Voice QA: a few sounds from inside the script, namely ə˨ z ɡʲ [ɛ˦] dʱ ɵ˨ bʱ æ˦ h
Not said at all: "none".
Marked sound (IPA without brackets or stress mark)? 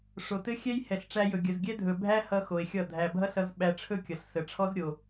ɛ˦